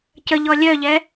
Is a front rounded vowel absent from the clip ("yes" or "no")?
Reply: no